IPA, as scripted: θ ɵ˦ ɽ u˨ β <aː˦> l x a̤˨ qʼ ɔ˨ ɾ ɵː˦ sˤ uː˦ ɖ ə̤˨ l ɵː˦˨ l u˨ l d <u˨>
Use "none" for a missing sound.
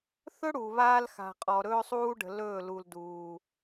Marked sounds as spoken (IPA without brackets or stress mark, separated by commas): aː˦, uː˨